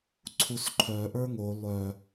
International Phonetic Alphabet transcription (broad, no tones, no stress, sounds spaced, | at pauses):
ǀʰ u s ǃʰ œ ʔ ə˞ ŋ o lˠ œ